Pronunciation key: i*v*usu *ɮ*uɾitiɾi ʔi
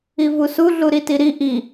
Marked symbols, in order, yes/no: yes, yes

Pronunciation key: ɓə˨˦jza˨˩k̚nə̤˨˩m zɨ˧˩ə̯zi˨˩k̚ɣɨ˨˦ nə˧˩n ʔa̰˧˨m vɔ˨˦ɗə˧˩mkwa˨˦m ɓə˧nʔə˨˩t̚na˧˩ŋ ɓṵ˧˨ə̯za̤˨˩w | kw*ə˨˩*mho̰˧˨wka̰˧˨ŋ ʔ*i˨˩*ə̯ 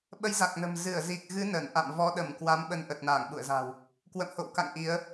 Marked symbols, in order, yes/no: no, no

